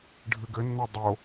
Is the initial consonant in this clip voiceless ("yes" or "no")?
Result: no